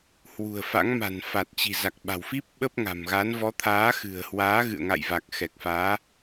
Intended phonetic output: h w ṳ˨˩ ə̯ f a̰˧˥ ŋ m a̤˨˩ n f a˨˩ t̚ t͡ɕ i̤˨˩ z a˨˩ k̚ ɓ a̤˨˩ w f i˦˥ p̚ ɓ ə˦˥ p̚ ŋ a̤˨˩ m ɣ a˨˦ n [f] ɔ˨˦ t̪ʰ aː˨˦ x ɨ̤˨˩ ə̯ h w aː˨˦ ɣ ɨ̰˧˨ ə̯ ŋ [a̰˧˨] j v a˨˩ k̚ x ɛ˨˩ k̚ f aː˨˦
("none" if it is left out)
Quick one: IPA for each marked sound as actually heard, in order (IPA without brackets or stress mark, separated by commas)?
v, a̰˧˨